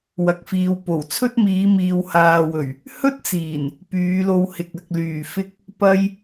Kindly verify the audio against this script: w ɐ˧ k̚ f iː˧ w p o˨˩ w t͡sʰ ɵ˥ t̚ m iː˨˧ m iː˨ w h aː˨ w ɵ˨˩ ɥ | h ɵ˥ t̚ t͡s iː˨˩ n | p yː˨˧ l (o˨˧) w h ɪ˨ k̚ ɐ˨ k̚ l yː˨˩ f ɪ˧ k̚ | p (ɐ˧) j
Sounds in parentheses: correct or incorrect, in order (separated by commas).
incorrect, correct